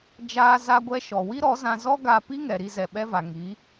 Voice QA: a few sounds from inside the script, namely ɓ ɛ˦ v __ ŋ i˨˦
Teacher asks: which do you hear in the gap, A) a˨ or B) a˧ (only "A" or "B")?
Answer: A